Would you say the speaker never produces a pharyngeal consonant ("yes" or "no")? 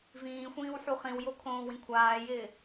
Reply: no